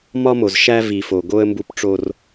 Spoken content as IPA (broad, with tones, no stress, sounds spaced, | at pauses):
m ɒ˦ m o˨ z ʃ æ˦ v i˨ f o˨ ɡ o˦ ə̯ m b u˦ p ʈ͡ʂ o˦ r